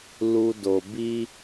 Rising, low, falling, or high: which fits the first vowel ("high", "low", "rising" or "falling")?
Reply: low